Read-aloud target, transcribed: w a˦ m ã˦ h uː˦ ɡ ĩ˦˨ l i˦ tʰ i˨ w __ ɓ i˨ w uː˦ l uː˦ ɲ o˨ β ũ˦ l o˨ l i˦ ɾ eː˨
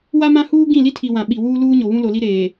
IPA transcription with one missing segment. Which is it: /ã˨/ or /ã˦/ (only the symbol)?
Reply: ã˨